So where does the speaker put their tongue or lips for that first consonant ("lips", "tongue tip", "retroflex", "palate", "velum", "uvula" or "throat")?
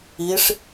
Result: retroflex